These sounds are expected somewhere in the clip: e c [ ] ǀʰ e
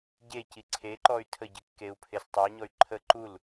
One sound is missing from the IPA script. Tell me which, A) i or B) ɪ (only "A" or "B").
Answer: A